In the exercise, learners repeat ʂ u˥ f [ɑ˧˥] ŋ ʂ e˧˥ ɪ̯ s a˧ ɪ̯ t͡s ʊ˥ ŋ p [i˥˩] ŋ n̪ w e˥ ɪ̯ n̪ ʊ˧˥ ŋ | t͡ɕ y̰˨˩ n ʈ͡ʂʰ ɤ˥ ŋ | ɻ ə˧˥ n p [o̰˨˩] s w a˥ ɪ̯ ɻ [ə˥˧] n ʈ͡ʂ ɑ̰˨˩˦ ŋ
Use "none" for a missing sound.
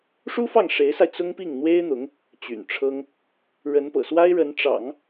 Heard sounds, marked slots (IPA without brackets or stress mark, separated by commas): ɑ˥˩, i˥˩, ɤ̰˨˩, ə˧˥